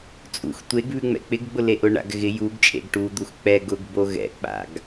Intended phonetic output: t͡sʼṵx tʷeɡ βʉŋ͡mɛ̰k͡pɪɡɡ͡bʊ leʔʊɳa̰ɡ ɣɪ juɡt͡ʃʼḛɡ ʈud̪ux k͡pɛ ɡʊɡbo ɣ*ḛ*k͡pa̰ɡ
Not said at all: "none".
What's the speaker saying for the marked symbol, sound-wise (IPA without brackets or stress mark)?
ɛ̰